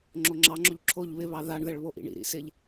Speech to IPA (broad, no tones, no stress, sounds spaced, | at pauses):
ŋ͡ǁ o ŋ͡ǁ ɑ ŋ͡ǁ o ʎ ǁʰ o ʎ β ɪ β ɑ ð a ɳ ð ɛ ɭ β o ʔ ḭ ɳ ḭ ɾ ḭ s ɪ ʎ